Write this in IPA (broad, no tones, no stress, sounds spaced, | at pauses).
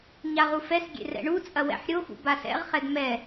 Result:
ɲ a ʁ u f ɛ s ɡʲ ḛ r ɛ̰ ɳ u t͡sʼ ɐ w ɛ̰ ħ ɾʲ o x ṵ b a s ɛ̰ ʁ χ ɛ d m ɛ